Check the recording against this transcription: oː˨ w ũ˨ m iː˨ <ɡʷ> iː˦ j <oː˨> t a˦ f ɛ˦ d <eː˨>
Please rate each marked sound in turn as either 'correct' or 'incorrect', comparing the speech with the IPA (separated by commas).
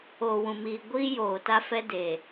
correct, correct, correct